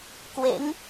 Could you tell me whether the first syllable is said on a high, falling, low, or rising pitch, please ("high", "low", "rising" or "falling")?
rising